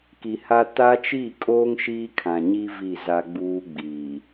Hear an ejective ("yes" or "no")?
yes